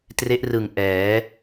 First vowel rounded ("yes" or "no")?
no